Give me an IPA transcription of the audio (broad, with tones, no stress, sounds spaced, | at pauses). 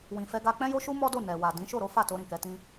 w ĩ˨ f ɛ˧ ɡ a˧ k͡p ɛ̃˦ j o˦ ʃ u˦ m ɔ˦ d o˦˨ n ɛ˨ w a˨ d ĩ˨˦ ʃ o˦˨ ɾ o˨˦ f a˦˨ t o˧ ɾ ĩ˨ k ɛ˧ t ĩ˦